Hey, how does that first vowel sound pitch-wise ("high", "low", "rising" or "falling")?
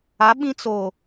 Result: rising